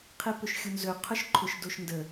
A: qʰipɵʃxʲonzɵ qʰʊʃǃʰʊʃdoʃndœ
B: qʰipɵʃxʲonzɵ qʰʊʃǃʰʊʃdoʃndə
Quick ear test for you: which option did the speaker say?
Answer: B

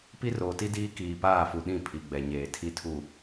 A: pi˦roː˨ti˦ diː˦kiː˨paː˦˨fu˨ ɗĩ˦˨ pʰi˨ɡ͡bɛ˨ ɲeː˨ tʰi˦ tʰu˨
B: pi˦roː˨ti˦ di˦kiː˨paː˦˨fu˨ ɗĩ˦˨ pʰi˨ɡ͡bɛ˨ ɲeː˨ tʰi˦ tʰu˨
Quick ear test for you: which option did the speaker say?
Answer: A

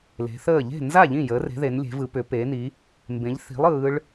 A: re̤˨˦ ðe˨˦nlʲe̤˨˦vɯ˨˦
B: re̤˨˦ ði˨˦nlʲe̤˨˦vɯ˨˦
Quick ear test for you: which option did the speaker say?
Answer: A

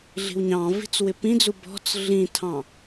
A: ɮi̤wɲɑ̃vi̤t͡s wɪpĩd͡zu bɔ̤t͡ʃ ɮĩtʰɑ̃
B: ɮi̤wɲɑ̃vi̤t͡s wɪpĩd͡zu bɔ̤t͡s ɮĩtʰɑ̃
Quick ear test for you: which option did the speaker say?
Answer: B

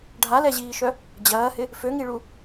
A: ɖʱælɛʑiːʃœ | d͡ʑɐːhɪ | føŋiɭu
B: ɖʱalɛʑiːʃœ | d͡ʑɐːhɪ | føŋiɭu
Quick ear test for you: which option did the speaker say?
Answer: B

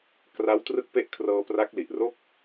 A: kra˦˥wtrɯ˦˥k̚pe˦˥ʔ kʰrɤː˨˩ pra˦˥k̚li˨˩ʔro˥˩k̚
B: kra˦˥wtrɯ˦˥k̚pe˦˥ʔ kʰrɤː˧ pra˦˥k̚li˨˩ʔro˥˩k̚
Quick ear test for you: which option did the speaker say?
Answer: B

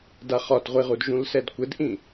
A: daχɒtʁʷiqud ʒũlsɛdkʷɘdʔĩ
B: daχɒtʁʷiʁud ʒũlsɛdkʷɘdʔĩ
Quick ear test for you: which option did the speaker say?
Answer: B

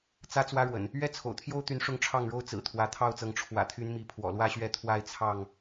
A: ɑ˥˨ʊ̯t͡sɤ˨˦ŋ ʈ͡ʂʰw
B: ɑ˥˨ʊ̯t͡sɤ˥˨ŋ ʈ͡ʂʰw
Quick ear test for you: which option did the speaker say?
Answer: A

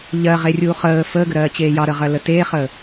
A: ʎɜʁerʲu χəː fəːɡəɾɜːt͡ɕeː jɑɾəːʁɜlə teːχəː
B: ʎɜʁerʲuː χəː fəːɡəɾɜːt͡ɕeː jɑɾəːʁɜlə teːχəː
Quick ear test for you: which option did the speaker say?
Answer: B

